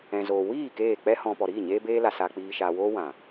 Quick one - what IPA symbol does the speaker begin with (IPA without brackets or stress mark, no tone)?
ɛ̃